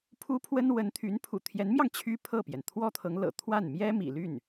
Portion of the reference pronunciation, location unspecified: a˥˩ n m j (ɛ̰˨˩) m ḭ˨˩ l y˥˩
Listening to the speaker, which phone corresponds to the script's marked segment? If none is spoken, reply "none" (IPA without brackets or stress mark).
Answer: ɛ˥